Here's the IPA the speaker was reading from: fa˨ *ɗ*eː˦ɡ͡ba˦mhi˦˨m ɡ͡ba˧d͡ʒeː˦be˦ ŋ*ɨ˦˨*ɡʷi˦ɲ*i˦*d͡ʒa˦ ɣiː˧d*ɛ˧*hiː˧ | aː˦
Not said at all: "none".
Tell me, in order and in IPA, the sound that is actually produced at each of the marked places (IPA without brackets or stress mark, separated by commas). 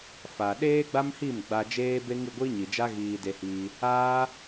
ɗ, ɨ˦˨, i˨, e˧